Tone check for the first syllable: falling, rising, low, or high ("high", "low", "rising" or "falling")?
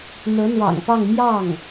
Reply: rising